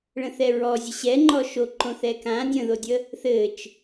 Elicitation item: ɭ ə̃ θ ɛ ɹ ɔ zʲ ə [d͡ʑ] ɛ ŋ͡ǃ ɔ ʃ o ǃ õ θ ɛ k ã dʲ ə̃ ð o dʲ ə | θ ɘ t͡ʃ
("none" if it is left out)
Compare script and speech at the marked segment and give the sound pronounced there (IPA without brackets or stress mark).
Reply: ɕ